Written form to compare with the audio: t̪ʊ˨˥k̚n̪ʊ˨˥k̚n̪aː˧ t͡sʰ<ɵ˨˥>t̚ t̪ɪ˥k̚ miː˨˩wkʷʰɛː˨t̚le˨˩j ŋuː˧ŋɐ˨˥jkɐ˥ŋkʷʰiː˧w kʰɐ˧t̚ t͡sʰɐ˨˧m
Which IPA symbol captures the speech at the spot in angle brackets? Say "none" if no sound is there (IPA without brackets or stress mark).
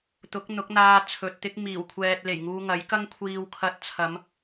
ɵ˨